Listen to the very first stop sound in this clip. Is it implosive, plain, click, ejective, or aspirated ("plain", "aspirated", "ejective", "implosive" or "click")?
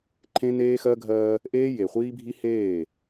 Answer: click